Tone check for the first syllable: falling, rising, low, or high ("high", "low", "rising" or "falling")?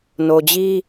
low